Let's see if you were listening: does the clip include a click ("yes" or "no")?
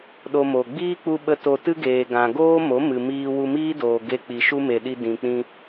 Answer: no